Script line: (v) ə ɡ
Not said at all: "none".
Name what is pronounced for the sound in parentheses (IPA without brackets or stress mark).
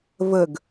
v